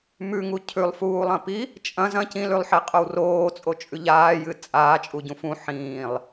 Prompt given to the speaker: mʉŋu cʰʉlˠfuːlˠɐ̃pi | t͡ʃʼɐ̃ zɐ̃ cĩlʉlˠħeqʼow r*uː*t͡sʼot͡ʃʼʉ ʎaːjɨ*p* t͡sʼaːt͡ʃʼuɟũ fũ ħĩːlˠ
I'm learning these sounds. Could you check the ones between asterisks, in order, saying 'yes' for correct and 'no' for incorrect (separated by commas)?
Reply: no, no